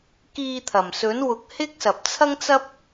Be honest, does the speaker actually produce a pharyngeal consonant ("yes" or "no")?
no